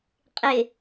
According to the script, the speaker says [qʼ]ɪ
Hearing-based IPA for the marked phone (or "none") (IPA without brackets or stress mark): qʼ